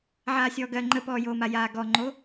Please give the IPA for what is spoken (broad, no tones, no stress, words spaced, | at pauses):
ʕaːsʲɔːɡɜ ŋ͡ǃəpɔːjoːma jaːɡɔŋ͡ǃo